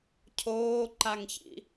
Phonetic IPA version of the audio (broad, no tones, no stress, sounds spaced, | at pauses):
cʰ oː ǃ a ŋ ç ḭ